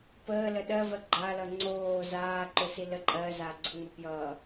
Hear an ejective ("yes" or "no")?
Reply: yes